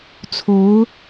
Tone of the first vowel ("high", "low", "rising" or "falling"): rising